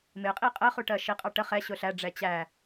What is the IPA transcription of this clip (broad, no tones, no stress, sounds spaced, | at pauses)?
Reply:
m ɪ qʼ i qʼ ɜ χ u ʈ ɜ ʃ i qʼ ɑ ʈ ə χ ɛ ɕ ʊ ɬ æ ɖ͡ʐ ɛ t͡ɕ æ